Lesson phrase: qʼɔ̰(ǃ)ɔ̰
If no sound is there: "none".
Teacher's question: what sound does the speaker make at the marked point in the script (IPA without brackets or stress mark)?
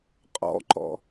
ǃ